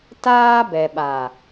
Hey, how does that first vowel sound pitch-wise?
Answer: high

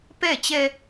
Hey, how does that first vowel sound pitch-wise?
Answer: falling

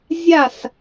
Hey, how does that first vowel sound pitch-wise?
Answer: falling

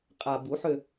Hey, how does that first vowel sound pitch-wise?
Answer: low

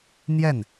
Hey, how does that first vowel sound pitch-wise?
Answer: falling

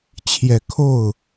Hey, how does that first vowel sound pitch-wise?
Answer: low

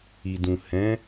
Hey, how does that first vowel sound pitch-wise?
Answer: low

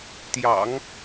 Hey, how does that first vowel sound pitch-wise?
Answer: low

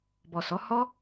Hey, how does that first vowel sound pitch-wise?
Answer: low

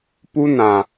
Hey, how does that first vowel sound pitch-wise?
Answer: high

